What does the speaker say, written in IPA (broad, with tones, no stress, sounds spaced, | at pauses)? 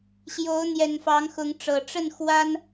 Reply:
ɕ j o˨˦ ʊ̯ n̪ j ɛ˨˩ n f ɑ˨˦ ŋ x ʊ˨˦ ŋ ʈ͡ʂ ɤ˨˩ ʈ͡ʂ ə˥˨ n x w a˦ n